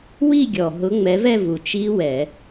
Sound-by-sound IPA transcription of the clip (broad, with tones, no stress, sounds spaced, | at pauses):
w i˥˧ ɡʲ ɔ˨˩ ɦ ʊ˨˦ ŋ͡m ɛ˨˦ v ɛ˥˧ v u˨˩ t͡ʃ i˦˥ w ɛ˧˩˧